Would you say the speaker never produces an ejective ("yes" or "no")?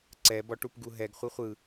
yes